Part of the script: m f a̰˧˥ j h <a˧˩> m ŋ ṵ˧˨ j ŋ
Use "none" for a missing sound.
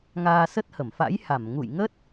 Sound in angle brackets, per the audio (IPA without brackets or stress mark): a˧˩